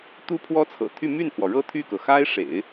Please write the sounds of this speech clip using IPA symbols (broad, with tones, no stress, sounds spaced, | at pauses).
t̪ u˥ pʰ w ɔ˥ t͡sʰ ɤ̰˨˩ t̪ʰ y˥˧ m y˥˩ n pʰ w ɔ˩ ɻ ɤ˥˧ t̪ʰ y˥˩ k ɤ˩ x a˥ ɪ̯ ʂ ḛ˨˩˦ ɪ̯